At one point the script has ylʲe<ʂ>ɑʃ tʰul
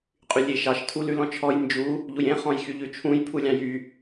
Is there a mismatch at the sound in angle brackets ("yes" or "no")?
yes